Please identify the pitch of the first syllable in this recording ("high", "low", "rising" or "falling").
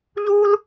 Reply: high